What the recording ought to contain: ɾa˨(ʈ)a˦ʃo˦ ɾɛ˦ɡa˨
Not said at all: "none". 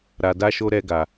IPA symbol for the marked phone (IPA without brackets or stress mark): d